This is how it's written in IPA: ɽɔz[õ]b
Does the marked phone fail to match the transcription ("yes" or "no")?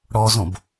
no